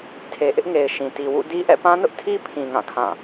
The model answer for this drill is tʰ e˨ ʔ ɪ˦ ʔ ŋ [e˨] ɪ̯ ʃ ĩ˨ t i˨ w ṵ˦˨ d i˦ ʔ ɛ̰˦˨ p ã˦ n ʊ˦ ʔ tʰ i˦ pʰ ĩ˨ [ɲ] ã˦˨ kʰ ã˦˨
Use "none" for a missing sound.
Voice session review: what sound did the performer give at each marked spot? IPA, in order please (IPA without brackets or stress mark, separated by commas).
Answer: e˨, ŋ